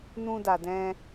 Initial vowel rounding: rounded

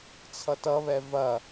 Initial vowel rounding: unrounded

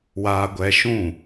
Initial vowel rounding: unrounded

